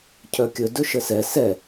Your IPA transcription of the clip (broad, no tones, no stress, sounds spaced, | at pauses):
cʰ œ kʲ ɵ d ɵ ʃ ə s ɛ s ɛ